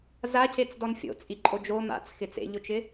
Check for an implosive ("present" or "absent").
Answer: absent